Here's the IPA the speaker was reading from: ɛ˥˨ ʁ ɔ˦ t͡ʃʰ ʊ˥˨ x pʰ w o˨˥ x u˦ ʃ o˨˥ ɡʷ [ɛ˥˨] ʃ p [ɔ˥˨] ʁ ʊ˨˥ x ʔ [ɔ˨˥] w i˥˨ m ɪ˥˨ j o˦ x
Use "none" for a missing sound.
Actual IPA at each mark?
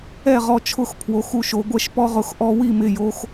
ɛ˥˨, ɔ˦, ɔ˦

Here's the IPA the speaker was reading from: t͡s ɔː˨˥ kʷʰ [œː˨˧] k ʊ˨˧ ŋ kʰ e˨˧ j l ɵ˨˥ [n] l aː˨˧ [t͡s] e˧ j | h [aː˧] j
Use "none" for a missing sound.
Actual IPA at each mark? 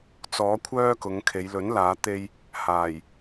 œː˥, n, t̪, aː˨˩

